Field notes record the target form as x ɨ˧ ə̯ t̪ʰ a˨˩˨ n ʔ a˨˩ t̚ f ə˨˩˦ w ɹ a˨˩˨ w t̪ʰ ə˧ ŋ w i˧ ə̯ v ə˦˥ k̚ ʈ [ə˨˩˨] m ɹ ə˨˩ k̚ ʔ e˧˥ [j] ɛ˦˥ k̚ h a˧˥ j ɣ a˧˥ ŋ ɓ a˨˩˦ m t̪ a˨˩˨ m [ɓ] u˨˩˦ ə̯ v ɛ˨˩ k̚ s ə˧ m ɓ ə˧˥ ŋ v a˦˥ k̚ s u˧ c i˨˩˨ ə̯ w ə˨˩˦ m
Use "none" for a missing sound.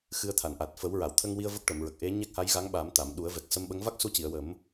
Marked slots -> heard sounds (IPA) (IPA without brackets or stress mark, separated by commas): ə˨˩˨, ɲ, ɗ